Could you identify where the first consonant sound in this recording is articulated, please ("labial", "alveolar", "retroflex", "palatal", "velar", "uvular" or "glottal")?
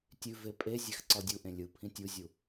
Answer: alveolar